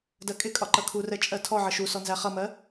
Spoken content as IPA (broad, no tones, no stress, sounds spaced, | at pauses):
d ɜ kʼ ɪ kʼ ɒ ǃ ʌ kʰ u r ɛ t͡ʃʼ ɜ tʰ ɔ ʕ ə ʃ u s ɔ n z æ χ ʌ m ɜ